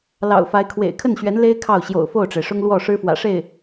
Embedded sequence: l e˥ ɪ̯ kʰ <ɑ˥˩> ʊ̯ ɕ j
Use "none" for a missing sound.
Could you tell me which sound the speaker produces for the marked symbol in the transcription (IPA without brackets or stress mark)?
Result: ɑ˥˩